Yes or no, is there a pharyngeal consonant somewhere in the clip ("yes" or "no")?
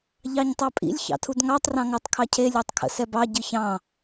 no